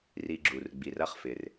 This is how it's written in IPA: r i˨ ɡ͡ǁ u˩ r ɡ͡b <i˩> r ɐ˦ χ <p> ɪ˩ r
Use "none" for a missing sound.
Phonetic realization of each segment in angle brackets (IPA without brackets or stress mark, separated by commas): i˩, f